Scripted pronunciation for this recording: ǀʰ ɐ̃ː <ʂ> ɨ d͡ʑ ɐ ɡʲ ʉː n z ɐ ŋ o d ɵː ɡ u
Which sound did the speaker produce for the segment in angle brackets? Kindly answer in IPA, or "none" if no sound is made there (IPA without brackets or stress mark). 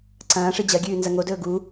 ʂ